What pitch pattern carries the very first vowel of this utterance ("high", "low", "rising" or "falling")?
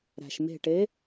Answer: low